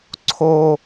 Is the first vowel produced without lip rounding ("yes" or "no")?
no